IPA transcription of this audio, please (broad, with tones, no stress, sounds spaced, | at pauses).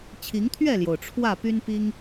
t͡ɕʰ i˨˦ ŋ t̪ʰ ɥ ɛ˥˨ l j o˩ ʊ̯ ʈ͡ʂʰ w ä˥˨ p y˦ n p i˦ ŋ